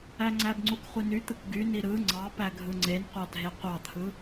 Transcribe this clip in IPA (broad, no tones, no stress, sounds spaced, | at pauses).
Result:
æ ŋ͡ǀ æ b ŋ͡ǀ u k χʷ i n y t̪ ɯ k ɡ y n i ɾ ɯ ŋ͡ǀ ɑ p æ ɡʱ ɯ ŋ͡ǀ e n qʷ ɑ dʱ e qʷ ɑ t̪ʰ ɯ